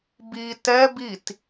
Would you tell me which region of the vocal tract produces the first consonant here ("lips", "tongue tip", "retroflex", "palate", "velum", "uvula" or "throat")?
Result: lips